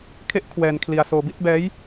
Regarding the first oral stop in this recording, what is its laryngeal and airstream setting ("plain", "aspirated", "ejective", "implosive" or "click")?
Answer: aspirated